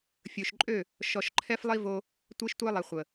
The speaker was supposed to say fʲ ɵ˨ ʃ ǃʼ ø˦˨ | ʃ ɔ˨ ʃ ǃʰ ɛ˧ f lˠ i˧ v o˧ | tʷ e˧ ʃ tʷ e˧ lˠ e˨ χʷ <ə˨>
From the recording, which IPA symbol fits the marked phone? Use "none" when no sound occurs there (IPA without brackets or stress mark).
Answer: ə˨